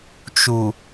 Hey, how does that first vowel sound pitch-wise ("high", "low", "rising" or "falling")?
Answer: low